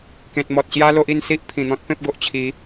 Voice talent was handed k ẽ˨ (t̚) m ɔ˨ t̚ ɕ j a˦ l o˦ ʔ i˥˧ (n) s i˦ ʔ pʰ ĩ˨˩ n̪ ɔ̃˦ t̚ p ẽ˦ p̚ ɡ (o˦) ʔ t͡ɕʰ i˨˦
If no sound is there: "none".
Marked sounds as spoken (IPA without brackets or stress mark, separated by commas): t̚, n, o˨